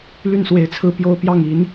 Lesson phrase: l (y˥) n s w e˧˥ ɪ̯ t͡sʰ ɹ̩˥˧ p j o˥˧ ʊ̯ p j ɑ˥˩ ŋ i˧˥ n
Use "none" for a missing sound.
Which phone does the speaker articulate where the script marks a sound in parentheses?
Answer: y˥˩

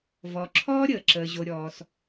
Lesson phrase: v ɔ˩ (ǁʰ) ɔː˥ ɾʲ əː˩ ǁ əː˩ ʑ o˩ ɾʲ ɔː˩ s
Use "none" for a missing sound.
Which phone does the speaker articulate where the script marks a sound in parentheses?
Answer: ǁʰ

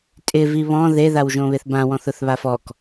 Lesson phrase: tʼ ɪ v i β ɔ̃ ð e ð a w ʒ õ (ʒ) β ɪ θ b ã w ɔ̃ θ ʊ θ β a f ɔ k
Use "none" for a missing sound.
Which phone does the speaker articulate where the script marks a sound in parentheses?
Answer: none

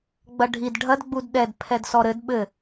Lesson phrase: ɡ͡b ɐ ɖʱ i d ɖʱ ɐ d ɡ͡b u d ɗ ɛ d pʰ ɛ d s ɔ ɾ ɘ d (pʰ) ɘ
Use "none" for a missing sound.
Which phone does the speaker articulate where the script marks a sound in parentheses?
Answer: ɓ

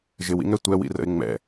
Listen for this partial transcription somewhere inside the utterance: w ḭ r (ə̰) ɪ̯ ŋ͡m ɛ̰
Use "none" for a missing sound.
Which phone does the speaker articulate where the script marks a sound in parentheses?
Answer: ə̰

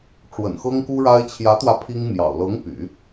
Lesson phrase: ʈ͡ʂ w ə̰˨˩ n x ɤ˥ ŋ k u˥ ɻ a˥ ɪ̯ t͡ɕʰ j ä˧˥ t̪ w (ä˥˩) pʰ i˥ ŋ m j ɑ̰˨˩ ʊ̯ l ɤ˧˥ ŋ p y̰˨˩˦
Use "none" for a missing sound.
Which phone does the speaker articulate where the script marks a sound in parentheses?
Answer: ä˧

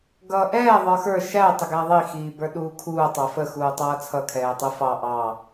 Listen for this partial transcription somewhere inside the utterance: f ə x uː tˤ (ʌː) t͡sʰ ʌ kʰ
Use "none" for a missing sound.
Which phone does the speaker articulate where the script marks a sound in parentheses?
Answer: ʌː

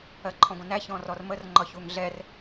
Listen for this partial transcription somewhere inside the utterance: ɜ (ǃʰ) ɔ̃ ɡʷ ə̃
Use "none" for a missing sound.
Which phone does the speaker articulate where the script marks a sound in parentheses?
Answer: ǃʰ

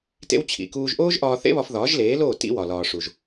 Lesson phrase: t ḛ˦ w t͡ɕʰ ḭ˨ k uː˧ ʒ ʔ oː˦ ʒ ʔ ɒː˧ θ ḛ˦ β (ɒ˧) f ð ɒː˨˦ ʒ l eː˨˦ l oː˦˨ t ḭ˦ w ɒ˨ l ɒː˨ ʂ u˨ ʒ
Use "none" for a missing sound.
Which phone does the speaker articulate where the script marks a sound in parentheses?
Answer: ɒ˧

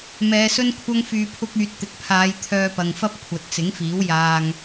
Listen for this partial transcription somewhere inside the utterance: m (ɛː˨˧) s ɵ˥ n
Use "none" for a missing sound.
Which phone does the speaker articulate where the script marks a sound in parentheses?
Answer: ɛː˨˧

